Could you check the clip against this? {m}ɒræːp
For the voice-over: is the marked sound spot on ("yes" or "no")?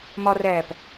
yes